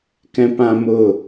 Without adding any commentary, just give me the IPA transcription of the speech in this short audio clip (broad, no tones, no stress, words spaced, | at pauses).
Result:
kɛ̃pãmʊ